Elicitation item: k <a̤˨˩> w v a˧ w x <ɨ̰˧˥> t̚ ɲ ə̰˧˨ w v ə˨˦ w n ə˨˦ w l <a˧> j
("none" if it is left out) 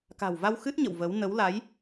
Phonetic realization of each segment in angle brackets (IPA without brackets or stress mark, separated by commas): a̤˨˩, ɨ˦˥, a˨˦